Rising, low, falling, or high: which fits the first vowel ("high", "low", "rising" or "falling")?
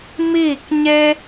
falling